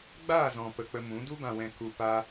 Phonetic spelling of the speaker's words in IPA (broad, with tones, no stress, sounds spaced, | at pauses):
ɡ͡b aː˦˨ z ɔ̃˨ p ə˨ k͡p ə˧ m ũ˨˦ d u˧ b ã˨ w ɛ̃˨ k u˨ p a˧